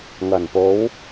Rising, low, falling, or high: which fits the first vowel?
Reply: low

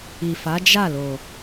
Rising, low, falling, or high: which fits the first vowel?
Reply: low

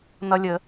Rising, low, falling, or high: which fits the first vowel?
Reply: high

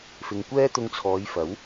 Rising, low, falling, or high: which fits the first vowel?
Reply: low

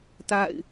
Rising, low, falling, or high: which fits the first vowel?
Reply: falling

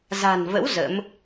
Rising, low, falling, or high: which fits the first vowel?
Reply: low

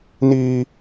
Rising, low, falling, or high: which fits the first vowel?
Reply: high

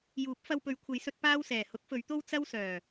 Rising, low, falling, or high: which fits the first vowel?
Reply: rising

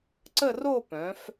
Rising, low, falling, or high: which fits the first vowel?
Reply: falling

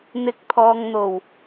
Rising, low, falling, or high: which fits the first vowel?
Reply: rising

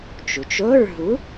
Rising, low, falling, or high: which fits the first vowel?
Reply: low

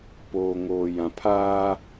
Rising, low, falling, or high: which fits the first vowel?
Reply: low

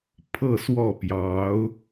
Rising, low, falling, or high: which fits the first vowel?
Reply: falling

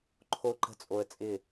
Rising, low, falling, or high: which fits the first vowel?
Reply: high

